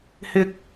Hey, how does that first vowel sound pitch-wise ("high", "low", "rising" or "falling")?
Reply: high